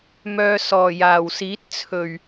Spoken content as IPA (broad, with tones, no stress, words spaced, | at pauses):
mœː˧ sɔː˨˩jaː˨˩wsiː˨˥t̚t͡sʰɵ˨˩ɥ